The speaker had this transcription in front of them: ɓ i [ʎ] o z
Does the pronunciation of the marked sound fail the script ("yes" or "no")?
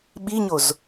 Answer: yes